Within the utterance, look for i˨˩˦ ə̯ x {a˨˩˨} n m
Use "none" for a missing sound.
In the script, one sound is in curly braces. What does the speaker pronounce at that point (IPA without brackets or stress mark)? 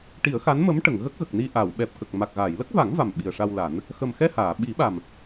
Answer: a˧˥